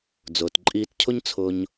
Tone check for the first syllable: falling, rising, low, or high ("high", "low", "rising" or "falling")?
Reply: low